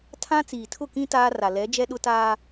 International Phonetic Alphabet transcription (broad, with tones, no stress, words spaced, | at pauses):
tʰã˦ t͡siː˨tʰʊ˦˨kĩ˦ taː˦ra˨ lɛ˨˦ d͡ʒɛ˦ɗʊ˦taː˦